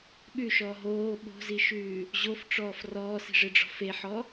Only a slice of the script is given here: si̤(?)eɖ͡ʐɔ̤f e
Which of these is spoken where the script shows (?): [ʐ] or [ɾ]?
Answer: ʐ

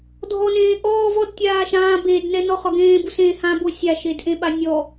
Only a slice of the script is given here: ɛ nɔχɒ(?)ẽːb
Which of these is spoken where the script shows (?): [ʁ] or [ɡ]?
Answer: ɡ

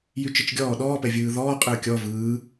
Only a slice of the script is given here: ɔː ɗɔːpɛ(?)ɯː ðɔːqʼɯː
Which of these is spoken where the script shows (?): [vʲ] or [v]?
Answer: vʲ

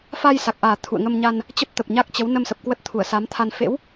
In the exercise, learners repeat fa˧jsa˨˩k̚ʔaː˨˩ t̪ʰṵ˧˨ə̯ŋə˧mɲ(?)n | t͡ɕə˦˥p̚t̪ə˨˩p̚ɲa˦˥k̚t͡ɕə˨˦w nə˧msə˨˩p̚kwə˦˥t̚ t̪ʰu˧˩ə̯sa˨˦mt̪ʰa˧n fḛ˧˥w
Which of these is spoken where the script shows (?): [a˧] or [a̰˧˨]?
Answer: a˧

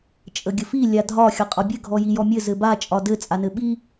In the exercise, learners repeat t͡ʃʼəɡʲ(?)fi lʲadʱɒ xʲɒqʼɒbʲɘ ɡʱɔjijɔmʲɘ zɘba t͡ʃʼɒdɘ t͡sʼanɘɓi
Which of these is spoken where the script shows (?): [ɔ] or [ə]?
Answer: ə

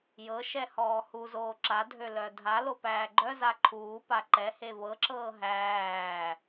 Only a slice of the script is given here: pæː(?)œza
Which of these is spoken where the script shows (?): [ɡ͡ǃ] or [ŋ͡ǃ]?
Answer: ɡ͡ǃ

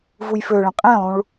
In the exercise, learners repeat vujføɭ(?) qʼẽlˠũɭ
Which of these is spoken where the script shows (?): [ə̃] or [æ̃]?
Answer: ə̃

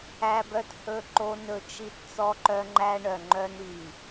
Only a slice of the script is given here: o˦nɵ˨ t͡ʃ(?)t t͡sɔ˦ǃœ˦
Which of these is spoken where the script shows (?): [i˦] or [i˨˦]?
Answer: i˦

